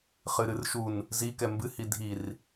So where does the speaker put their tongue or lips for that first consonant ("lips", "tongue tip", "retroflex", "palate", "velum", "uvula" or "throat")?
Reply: uvula